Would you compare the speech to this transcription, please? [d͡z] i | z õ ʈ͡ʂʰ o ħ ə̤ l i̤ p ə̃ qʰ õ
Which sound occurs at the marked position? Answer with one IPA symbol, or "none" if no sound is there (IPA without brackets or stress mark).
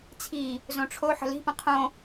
t͡sʰ